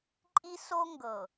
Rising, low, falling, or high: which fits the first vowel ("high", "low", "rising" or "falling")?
high